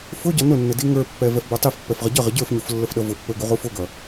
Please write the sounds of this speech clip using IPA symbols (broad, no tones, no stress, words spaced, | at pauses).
fʊɟʌ nʊnːɪ diŋə˞pːɛ vɛfbə˞tˤifpːɛf ʁəɟʌʁɪ ɟə˞fɲuf lːəfɗʌvʊpːə˞ ɡuʁufʊɡʌ